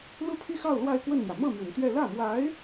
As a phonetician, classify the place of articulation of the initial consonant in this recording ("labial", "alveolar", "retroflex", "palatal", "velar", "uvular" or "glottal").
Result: alveolar